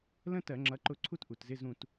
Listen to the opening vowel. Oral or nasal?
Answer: nasal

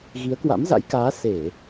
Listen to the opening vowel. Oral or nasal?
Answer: oral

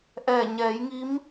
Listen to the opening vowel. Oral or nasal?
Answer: oral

